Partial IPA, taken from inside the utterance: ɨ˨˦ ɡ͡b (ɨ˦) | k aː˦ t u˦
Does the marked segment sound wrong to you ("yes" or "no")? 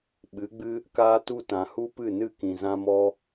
no